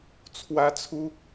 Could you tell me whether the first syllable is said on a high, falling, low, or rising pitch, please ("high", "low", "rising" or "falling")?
high